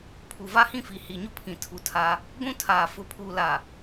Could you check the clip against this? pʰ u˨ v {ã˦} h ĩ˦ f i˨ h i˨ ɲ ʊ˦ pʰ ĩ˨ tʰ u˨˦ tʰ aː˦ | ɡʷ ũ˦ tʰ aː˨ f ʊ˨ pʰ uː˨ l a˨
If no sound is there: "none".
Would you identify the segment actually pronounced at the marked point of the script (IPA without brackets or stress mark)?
a˦